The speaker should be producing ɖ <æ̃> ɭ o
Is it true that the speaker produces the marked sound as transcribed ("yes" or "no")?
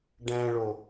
yes